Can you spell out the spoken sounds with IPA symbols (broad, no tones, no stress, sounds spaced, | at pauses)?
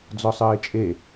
d͡z ɔ sˤ əː ɪ̯ t͡ʃʼ e